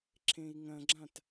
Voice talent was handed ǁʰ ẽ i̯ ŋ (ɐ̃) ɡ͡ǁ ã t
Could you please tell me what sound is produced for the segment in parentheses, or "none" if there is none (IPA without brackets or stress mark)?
ɐ̃